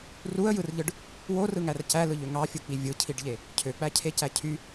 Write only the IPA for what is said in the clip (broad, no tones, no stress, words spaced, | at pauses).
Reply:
ruə̯jɯrʎɯɖ | worɯŋær cælɯʎø ŋɑfʲuk͡pi vʲɯcʰiɖʎe | cʰøk͡pæcʰecæ cʰy